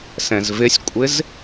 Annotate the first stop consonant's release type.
ejective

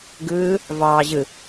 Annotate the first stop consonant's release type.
plain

